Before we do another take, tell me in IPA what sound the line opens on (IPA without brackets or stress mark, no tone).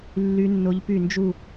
lː